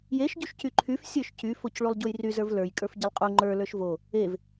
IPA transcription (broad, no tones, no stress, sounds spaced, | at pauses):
j e ʃ ɟ u ʃ c y ǃʰ y f sʲ ə˞ ʃ c y f o c ɭ u lˠ ɟ u j r y z ə˞ v l ə˞ j kʼ ə˞ f ɟ i lˠ qʼ u ŋ͡ǃ ə˞ l ə˞ ʃ v o | e v